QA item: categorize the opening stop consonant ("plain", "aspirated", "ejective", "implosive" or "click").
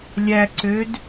click